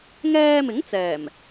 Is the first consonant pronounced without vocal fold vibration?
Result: no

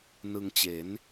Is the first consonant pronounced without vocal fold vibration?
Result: no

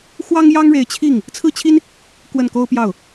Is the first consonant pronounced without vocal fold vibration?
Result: yes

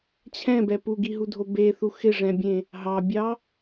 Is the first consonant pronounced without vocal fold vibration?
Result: yes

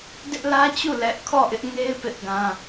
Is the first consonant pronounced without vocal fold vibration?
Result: no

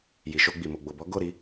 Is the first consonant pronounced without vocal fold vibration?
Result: no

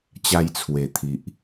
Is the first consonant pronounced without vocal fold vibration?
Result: yes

